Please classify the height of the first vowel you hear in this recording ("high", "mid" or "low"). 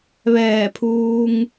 mid